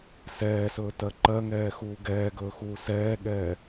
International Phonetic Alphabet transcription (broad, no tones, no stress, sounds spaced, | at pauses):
s ɛː s ɵː t ɜ ǃ ɜ ŋ ɛː x uː ɡ ɛː ɡ ɵː x uː s ɛː ɠ ɛː